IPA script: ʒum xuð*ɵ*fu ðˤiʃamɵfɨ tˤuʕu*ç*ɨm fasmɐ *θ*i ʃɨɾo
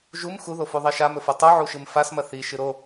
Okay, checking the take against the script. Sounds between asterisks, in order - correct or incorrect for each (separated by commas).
incorrect, incorrect, correct